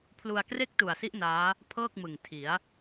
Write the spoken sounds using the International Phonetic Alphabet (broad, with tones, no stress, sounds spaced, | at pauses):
pʰ l u˧ a̯ k r e˥˩ k̚ t u˨˩ a̯ s i˦˥ ʔ n aː˦˥ | pʰ ɤː˥˩ k̚ m ɯ˨˩ ŋ tʰ i˩˦ a̯